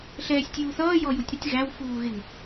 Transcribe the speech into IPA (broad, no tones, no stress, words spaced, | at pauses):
ɬɛːsʲtʲuːθʌː jɔjutʲɾɪtʲ ɣæw fuːɣɪŋ